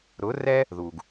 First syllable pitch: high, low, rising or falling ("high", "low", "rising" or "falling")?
rising